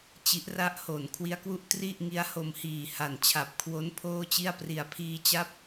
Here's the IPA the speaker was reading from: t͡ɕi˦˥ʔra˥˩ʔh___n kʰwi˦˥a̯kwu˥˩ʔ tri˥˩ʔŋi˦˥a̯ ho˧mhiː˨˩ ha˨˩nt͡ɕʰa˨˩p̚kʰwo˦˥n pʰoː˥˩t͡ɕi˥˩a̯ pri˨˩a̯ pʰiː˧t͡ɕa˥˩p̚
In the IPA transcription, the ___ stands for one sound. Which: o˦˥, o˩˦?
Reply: o˩˦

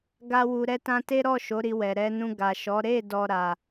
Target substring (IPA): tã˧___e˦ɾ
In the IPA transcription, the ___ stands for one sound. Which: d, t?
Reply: t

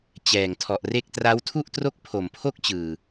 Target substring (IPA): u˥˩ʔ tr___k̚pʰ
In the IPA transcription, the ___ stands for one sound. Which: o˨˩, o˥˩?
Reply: o˥˩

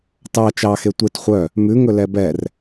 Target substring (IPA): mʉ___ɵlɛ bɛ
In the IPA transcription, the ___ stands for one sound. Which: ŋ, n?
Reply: ŋ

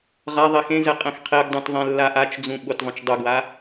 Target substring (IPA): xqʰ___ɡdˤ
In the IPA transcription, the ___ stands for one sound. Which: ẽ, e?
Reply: e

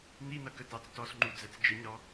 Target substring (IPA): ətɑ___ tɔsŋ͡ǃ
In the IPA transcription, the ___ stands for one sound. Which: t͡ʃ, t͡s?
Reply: t͡s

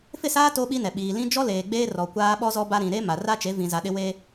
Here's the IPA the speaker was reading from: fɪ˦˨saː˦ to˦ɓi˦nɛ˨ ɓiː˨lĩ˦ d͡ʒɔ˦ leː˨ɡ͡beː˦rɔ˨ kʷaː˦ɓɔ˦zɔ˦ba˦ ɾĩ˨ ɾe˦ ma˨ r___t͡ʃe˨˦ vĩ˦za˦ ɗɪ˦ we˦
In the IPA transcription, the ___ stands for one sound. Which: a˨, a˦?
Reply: a˦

